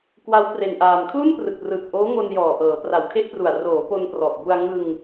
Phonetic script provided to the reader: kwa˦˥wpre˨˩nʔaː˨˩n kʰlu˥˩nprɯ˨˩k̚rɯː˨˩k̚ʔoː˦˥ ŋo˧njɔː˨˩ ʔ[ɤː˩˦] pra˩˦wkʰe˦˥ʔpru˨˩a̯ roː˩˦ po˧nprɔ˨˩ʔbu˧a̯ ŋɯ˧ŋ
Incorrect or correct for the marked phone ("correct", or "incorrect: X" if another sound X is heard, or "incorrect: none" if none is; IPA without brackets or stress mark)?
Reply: correct